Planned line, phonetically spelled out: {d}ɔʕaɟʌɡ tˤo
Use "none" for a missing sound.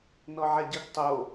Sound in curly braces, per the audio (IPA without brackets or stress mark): n